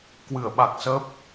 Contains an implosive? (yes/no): yes